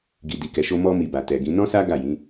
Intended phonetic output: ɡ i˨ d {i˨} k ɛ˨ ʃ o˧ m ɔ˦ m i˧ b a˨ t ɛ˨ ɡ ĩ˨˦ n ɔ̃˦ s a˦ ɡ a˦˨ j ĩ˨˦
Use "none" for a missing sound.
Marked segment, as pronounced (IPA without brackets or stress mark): i˨